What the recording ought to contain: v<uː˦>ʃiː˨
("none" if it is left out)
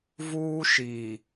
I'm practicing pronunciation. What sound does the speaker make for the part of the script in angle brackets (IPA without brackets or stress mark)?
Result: uː˦